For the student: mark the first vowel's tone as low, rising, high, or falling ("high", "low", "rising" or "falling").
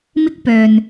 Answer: high